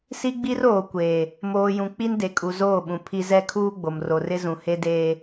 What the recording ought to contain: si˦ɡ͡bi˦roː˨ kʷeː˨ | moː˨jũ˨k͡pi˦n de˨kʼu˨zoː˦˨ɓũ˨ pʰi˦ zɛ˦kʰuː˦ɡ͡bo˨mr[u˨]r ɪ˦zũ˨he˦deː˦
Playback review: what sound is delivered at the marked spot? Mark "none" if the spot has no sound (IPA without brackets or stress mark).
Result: o˨